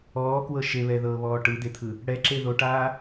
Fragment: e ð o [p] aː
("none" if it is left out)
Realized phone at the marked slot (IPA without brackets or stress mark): ʈ